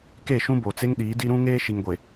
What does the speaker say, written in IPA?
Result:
ke˦˨ʃũ˦bo˨t͡se˦ŋ ɗiː˨˦di˦ ɾũ˦ŋeː˦ ʃi˨ŋɡʷe˨

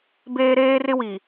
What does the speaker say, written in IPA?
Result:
beː˦ɾeː˦rɪ˦wi˨

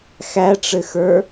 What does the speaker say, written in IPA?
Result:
xæʈ͡ʂɘxə˞

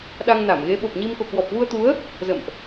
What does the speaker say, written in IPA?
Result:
ɗa˧ŋna˧˩mɣe˨˦ ɓo˨˩p̚ɲi˧m ko̰˧˨kwɔ˨˩p̚ vu˧ə̯t̪u˨˦ə̯ | zə̰˧˨mʔ

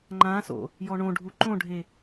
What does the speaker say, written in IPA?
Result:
ŋ͡ǃãso̰ | jɔɳõɖʱu ǃõɖʱe

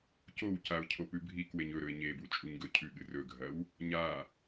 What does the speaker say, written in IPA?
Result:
cowcaʊ̯ cʰopʉbʱikweɲ ɵɾɵɪ̯ ɲebu t͡ʃʼuɲɡɵcʰʉɠɨ rɵɡʱɐw | ɲa

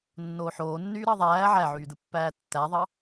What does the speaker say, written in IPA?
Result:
nːoːħoːnːyː ɾɑðˤæː ʕæʕyːdɯpːæː tːæðˤɑ

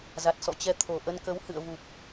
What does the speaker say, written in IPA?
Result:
za˨˩t̚ sɔ̰˧˨t͡ɕɛ˧ t̪ʰo˨˩ʔə˧nkə˨˦whɨ̰˧˨ə̯ vu˨˩p̚

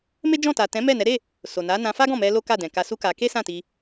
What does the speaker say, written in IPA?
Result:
me˦d͡ʒɔ̃˦˨ta˨ tɛ̃˨˦ mɛ˦˨nɛ˨˦ ɾe˦˨ | so˨na˨˦ nã˧fa˦ɡɔ̃˦˨ mɛ˧ lo˦ka˦˨dɛ̃˨ ka˧su˦ka˧ ke˦sã˦˨ti˧

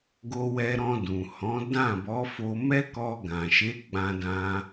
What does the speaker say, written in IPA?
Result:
ɡo˧wɛ˧ɾɔ̃˧dũ˨ hɔ̃˨˦ dã˦˨bɔ˨˦fo˧ mɛ˦kɔ˧ ɡã˨ʃe˨˦ ɡ͡bã˧dã˧

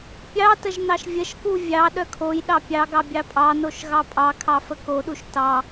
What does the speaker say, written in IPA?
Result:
pʲɑtəʒ nɑʃvʲəʃku vʲɑ ɗœkʰojɗɑ pʲɑɡɑ bʲɑpʼɑnoʃ ɣɑpʼɑkʰɑ fəkoɗuʃ tɑ

